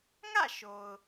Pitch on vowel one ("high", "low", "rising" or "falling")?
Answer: falling